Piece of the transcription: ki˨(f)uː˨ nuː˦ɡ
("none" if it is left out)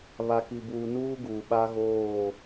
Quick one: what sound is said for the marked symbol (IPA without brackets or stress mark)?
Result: b